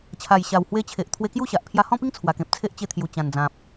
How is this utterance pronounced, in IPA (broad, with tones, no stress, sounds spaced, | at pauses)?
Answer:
t͡ɕʰ a˨˩ j ɕ a˨˩ w h w e˧ t͡ɕʰ e˨ ʔ t̪ʰ w e˧ k j u˥˧ ɕ a˨ ʔ pʰ j a˧ h ɔ̃˥˧ p i˦ ŋ t͡sʰ w a˨˩ k ẽ˨ p̚ t͡sʰ e˦ ʔ t͡ɕ e˧ t̪ʰ j u˨˩ t͡ɕ ã˨˩ n d͡z ã˨ p̚